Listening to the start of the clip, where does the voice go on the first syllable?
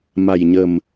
low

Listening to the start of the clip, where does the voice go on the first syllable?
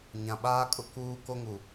low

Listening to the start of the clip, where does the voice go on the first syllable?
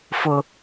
high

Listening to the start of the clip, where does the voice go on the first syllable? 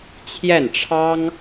falling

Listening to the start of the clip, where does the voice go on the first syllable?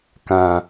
low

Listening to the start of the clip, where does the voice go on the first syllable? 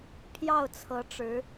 falling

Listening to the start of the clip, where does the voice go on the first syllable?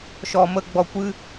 low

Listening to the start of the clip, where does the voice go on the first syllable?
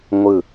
falling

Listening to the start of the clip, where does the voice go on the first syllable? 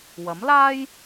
rising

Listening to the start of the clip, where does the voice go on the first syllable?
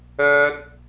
high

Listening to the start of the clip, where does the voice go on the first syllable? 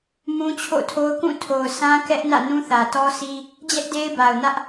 high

